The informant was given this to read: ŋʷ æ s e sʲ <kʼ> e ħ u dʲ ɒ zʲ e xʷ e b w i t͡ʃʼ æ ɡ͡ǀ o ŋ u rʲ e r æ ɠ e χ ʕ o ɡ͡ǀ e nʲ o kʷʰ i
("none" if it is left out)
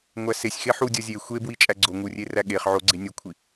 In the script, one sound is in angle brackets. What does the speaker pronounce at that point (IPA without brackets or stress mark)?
x